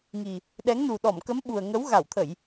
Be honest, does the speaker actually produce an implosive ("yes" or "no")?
yes